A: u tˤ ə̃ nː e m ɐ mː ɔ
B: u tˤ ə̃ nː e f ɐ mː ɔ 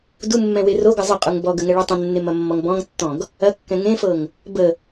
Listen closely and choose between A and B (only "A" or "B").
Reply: A